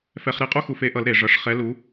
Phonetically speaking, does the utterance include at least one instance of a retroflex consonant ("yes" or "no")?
yes